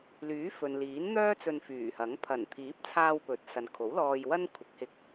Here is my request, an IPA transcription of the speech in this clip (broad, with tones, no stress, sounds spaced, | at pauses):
l yː˨˥ f ɵ˨ n l iː˨˥ n n̪ œː˥ t͡s ɵ˧ n f yː˨˩ h ɐ˨˥ ŋ pʰ ɐ˨˩ n t̪ʰ iː˨˥ p̚ t͡sʰ aː˧ w p ɵ˨˥ t̚ s ɐ˨ n kʰ o˨˥ w l ɔː˧ j w ɐ˥ n kʷʰ ɪ˨˥ k̚ h ɪ˧ k̚